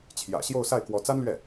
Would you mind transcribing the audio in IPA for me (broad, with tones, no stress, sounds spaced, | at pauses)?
t͡ɕʰ j ä̰˨˩ ɕ j o˥˧ ʊ̯ s a˥˩ ɪ̯ k w ɔ˧˥ t͡s a˥ n l ɥ ɛ˥˩